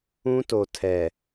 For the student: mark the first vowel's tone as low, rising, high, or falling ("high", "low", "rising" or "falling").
high